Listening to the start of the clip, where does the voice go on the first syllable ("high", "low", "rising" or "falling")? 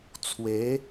rising